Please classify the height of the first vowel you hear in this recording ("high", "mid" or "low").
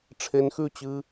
mid